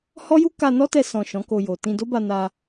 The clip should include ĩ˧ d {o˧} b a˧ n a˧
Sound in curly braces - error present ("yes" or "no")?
yes